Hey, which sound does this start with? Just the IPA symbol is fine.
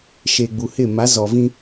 ʃ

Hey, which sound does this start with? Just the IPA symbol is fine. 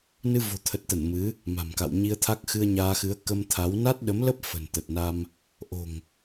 n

